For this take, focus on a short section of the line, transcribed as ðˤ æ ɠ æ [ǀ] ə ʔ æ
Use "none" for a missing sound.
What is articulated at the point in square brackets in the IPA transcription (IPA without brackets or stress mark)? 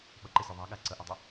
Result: ǀ